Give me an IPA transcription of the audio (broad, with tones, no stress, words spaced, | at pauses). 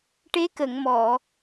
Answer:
ʈe˧˥ kə˨˩˨ŋmɔ˨˩˨